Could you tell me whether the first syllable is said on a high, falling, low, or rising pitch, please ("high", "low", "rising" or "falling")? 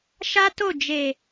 high